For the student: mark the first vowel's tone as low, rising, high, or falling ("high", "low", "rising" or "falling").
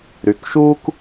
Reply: rising